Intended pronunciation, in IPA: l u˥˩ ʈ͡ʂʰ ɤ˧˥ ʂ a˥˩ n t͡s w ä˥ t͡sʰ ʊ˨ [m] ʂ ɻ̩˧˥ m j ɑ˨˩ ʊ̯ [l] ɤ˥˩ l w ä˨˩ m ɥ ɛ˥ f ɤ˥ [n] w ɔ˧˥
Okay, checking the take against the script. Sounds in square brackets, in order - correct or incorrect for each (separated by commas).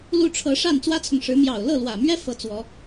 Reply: incorrect, correct, incorrect